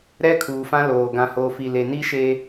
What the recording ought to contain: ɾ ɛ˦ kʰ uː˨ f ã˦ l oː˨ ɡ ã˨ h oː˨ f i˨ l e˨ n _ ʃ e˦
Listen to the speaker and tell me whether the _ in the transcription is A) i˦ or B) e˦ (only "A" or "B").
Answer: A